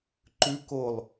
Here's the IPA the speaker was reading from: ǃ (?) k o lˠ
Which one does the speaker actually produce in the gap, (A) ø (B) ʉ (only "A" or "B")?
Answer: B